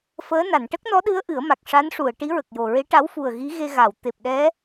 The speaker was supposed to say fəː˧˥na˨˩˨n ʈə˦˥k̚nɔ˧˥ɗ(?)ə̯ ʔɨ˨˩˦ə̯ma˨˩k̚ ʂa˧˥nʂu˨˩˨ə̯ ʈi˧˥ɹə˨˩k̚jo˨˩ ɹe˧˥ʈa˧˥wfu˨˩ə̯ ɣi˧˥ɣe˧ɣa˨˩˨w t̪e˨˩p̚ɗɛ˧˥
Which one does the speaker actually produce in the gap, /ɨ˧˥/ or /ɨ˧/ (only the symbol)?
ɨ˧˥